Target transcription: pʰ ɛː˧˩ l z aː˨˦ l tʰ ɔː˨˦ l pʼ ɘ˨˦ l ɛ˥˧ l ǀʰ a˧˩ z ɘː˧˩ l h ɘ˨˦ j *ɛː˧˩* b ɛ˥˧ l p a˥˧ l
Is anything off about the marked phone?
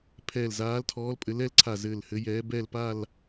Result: yes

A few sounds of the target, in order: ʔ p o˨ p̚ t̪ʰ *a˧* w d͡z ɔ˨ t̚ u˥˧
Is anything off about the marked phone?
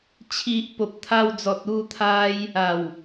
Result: no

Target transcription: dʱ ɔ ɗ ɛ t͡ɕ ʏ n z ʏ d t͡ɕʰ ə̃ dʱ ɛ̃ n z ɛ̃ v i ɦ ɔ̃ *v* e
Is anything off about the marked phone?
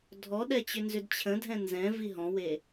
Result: yes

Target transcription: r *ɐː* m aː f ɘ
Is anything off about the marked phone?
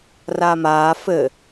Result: yes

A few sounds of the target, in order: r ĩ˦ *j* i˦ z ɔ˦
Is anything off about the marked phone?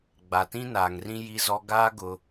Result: no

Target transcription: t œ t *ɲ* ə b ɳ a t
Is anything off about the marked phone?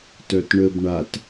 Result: yes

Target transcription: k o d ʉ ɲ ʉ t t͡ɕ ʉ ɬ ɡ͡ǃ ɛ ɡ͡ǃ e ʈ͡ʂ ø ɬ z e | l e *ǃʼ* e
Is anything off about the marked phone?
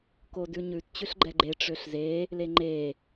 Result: yes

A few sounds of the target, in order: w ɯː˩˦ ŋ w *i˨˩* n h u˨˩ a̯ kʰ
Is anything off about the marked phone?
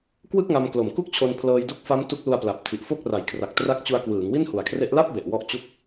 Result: yes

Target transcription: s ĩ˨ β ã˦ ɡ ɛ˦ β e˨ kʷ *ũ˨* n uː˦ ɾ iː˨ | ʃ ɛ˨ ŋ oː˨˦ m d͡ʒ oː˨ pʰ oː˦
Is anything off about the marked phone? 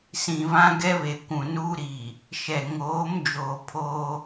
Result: no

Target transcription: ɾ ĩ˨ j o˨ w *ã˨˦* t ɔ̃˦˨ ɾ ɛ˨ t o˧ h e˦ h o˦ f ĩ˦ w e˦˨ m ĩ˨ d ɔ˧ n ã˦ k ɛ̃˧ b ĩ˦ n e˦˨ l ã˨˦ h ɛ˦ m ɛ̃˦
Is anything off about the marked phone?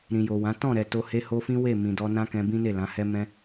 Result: no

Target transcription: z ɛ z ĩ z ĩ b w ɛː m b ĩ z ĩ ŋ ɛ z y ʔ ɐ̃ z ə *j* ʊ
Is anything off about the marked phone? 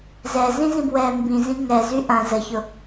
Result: yes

